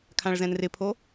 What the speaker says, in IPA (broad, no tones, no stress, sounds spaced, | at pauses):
kʰ ã ɭ z ɛ̃ n r ɪ pʰ o